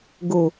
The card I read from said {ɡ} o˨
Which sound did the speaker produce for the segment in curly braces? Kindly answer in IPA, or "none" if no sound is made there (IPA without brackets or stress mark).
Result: ɡ